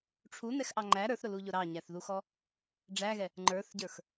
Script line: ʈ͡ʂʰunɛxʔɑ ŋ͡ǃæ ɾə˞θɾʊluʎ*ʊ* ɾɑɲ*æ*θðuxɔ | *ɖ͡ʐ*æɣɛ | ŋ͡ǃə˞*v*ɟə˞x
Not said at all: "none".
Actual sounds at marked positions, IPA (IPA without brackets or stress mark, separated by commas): ʊ, æ, ɖ͡ʐ, θ